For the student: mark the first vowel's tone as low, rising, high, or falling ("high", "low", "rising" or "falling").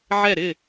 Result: falling